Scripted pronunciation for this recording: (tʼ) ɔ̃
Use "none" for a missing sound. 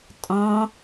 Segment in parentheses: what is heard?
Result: tʼ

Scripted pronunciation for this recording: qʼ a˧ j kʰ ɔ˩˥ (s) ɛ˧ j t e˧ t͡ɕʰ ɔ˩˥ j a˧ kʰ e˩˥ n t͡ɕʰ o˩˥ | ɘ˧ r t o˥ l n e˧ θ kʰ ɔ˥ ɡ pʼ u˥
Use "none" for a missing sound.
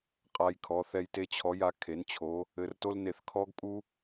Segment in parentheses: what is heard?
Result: θ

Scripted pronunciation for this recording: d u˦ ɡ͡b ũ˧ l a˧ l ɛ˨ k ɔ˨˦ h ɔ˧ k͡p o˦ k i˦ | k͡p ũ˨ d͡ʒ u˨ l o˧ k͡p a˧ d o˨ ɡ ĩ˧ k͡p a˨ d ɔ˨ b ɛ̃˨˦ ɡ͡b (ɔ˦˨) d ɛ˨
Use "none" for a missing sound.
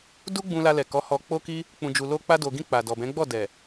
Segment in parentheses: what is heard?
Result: ɔ˦˨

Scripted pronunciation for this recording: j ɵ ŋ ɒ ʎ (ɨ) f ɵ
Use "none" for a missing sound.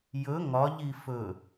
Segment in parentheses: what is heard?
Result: i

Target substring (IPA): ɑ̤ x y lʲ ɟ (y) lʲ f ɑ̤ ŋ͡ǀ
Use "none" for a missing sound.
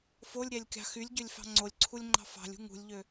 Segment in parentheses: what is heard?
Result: ø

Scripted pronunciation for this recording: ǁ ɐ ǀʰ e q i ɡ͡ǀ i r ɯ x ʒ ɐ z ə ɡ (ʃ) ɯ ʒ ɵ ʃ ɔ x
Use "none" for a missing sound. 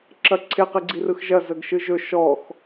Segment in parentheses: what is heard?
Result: ʃ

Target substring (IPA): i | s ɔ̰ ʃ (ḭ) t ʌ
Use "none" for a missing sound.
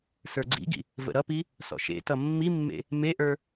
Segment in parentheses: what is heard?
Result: ḛ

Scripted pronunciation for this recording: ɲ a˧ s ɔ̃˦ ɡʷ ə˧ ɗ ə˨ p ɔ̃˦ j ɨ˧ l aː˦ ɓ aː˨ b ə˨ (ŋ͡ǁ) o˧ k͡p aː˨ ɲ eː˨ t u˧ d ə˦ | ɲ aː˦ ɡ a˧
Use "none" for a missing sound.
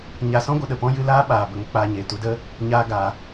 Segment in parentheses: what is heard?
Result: ŋ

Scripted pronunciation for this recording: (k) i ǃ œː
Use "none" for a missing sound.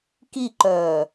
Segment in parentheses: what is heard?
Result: k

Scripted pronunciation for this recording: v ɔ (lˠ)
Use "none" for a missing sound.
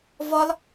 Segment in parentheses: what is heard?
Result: lˠ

